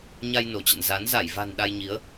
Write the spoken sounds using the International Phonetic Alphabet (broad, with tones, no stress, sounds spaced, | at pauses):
ɲ a˧ j n o˧˩ t͡ɕ ə̰˧˨ n z a˨˦ n z a˧˩ j v a̤˨˩ n ɗ a˧ j ɲ i˨˦ ə̯